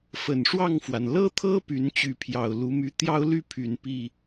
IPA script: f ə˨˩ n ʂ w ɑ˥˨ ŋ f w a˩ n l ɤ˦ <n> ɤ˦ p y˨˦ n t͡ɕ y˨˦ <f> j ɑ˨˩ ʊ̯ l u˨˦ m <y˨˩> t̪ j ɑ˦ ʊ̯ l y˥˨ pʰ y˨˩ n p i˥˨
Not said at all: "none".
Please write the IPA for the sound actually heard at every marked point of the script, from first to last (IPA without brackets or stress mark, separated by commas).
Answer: t̪ʰ, pʰ, y˨˦